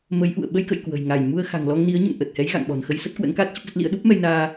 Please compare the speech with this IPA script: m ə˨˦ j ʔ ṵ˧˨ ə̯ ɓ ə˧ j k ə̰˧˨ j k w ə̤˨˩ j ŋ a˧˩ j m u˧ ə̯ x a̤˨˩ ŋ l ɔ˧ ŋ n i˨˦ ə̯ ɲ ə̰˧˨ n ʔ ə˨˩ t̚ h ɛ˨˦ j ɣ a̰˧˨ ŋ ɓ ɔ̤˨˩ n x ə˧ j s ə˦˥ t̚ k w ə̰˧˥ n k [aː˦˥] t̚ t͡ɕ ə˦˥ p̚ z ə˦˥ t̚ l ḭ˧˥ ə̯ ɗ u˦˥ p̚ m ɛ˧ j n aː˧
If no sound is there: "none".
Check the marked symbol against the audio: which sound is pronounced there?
aː˦˥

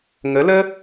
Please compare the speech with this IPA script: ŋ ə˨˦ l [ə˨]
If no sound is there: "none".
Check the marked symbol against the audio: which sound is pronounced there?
ə˦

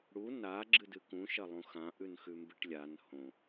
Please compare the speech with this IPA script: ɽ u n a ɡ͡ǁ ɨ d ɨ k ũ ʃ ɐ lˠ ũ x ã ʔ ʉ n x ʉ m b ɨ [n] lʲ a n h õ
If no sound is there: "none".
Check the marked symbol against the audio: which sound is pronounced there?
ʈ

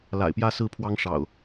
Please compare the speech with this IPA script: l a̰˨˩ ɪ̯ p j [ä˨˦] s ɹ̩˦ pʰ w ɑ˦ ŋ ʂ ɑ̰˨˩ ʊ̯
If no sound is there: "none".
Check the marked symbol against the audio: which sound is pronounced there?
ä˦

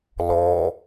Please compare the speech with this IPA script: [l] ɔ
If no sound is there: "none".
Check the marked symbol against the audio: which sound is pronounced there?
l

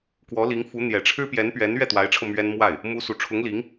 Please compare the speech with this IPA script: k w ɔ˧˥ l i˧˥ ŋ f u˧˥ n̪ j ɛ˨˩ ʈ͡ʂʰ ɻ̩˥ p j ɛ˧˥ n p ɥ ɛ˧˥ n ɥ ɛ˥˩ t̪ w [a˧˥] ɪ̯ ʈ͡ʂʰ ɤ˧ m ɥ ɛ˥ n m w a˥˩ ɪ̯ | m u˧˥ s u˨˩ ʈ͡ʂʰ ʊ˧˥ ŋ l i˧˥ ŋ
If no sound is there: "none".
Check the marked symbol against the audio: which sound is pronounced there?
a˧˥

